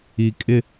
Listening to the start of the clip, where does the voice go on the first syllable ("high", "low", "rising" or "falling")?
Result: low